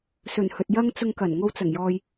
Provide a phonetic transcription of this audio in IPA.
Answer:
sɵ˨˩nhɵ˨t̚jɐ˥ŋ t͡sʊ˧ŋkɐ˨˩n ŋo˧wt͡sɐ˨˩ŋjɔː˨j

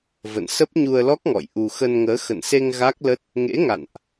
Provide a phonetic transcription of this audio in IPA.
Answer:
və̰˧˨nsə˦˥p̚ɲu˧ə̯lɔ˦˥k̚ ŋɔ̰˧˨jʔu˧ xə˧nŋəː˨˦ xə̰˧˨nse˧ŋ ɣa˦˥k̚lə˦˥t̚ | ŋḛ˧˥ŋa̰˧˨nʔ

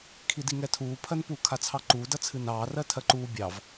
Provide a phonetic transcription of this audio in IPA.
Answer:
kʰidiŋɛtʰuː pʰɜnpu kʰat͡sʰɑǃuː dɐt͡sʰɨnɑː rɜtʰɜǃuː bʲɑv

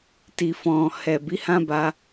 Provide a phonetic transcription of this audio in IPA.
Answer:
ti˨fɔ̃˨ hɛ˨ bi˨˦hã˦ba˧

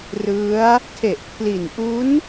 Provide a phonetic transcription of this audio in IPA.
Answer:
rɯ˦˥a̯ | tʰe˨˩ʔpʰli˨˩n ʔu˦˥n

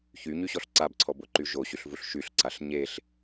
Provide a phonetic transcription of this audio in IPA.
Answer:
çyɲyɕɔɬ ǀabǀʰɔboǃy ʒoɕyɬvuɬ ʃyɬǀaɬ ɲeɬ

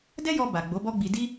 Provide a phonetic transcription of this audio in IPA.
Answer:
dɛ˦jɔ˧ ba˨ ɡ͡bo˨˦bɔ˦ɡ͡bi˧ di˦

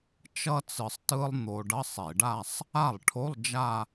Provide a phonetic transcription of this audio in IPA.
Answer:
t͡ʃʌ˥t͡sɯ˧sˤ tɯ˥lˠ n̪o˧ ɖʌ˧˥˧sˤe˧˩˧ɖa˥˧sˤ | a˥˩lˠʈʰo˧˥˧lˠ d͡ʒa˥˧

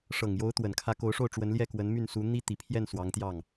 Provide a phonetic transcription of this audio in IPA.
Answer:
ʂɤ˨˩ŋjo˧˥ʊ̯t̪wə˨˩nkʰä˧˥ ko˧˥ʊ̯ʂo˥˩ʊ̯ ʈ͡ʂwə˧˥nljɛ˥˩kwə˧˥n my˥˩nsu˧˥ n̪i˥t̪i˨˩ pʰjɛ˥˩n swɑ˧˥ŋt̪jɑ˥˩ŋ

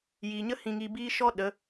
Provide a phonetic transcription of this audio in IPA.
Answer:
jiː˨ɲə˦ hĩ˨ŋi˨ biː˧ ʃɔ˦ ɗə˨˦

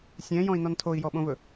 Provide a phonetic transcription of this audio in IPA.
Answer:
sʲɛ̃jɔ̃i̯nɔn tʰoi̯jɔɓõvɵ

